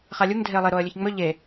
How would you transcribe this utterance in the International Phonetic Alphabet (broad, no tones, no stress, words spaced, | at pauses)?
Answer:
χalʲuŋ dʱeə̯lˠe ɾoə̯lʲɵçŋ͡mɵ ʎe